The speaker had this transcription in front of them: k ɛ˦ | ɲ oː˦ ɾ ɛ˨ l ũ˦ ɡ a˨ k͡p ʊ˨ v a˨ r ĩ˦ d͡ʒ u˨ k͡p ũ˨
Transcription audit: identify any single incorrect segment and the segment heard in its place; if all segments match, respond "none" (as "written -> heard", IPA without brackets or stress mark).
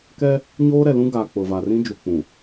none